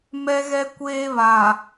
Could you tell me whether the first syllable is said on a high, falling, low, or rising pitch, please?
high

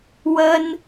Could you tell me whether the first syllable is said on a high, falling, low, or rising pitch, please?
high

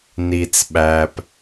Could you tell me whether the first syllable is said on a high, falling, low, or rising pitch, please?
low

